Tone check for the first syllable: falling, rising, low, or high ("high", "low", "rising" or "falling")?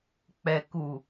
low